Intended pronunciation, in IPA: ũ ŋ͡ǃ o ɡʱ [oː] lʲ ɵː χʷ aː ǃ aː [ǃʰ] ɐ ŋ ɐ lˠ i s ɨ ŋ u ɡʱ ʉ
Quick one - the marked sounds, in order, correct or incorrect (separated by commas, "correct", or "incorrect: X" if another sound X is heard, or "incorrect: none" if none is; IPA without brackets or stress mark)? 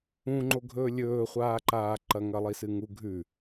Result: incorrect: ɵː, incorrect: ǃ